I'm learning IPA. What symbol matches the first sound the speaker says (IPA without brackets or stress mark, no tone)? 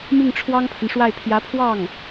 m